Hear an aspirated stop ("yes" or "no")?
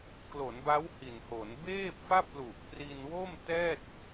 no